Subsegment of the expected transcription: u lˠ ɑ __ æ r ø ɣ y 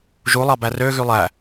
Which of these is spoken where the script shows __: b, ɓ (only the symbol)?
b